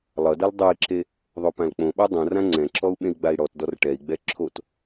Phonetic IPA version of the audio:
lˠ ʌ d ʌ l dˤ ʌ i̯ ǁ e | ðˤ o p ã l k͡p õ ɓ a dˤ õ r ã ŋ͡ǀ ɛ̃ ǁ ɔ u̯ ɓ ẽ i̯ ɡ͡b a i̯ ɽ ɔ t d ɔ r ʈ ɛ i̯ ɡ͡b ɛ ǁʰ o t

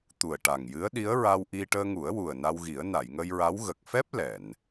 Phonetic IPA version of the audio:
t̪ u˨˩ ə̯ ʈ a˨˩ ŋ j ɨ˧˥ ə̯ ɗ i˧˥ ə̯ ɹ a˧ w ʔ i˧ ʈ əː˧ ŋ u˨˩˦ ə̯ w u˨˩ ə̯ n a˧ w ɣ i˨˩˦ ə̯ n a˨˩˨ j ŋ ə˧ j ɹ a˧˥ w ɣ ə˨˩ k̚ f ɛ˦˥ p̚ l ɛ˨˩˨ n

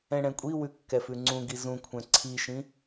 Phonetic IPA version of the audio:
ɛ̃ ɽ ɛ̃ kʷʼ i w ʉ kː ɛ f ʉ ŋ͡ǀ ũ ɡ i z ũ kʷʰ ɛ̃ ǀʰ i ʃ ĩ

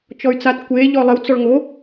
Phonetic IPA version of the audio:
t͡ʃ ɔ y̯ t͡s a t kʷ e ʎ ɔ lˠ ɪ w t͡s ɔ ɭ ŋ o

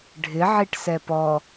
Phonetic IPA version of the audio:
ɖʱ ɪ ʕ i ʈ s ɛ p ɔ

